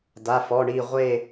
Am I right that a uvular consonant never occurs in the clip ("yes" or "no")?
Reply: no